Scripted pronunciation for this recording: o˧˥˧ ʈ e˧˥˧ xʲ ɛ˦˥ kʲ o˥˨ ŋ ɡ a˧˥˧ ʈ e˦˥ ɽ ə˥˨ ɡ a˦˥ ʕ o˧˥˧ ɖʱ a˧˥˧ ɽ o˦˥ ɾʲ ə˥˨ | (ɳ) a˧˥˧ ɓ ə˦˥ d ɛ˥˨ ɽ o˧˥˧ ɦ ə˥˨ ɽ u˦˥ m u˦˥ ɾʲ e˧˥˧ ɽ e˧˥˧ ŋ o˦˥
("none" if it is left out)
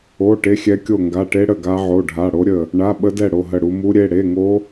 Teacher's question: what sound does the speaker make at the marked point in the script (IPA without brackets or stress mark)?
ɳ